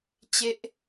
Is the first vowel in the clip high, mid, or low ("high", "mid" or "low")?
mid